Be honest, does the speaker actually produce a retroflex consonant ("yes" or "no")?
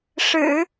yes